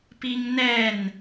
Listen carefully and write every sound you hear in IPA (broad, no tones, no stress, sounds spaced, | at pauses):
p i ŋ n ɛ n